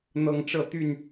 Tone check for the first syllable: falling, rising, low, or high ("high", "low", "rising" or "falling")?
rising